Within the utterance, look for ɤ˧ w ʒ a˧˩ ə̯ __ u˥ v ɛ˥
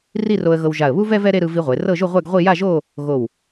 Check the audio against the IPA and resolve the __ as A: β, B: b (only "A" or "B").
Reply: A